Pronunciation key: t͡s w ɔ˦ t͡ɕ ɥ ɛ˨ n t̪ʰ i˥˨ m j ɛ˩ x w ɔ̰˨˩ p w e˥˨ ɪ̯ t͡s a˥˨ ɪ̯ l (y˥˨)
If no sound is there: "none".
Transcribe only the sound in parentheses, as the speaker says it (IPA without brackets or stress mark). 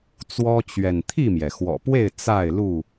u˥˨